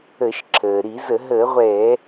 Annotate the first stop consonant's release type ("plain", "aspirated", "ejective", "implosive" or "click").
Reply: click